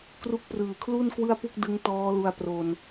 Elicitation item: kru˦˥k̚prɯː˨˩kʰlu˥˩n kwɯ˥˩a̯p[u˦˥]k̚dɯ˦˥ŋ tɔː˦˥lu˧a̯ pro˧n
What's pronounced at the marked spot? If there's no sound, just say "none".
u˥˩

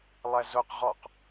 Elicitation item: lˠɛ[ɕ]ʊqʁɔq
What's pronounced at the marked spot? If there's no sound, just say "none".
z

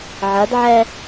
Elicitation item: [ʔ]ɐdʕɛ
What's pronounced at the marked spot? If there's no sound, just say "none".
ʕ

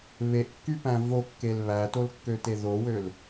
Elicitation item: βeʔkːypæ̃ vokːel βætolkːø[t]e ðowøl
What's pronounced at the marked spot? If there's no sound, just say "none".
t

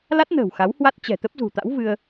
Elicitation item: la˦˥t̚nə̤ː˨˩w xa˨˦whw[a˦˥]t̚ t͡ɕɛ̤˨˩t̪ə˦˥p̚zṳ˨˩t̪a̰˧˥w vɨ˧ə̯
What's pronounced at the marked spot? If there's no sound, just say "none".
a˦˥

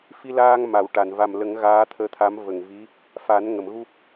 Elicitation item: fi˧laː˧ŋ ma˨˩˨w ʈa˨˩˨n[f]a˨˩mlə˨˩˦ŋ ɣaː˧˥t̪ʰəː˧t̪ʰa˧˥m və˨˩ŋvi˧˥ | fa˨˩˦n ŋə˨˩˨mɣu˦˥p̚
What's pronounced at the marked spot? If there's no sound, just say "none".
v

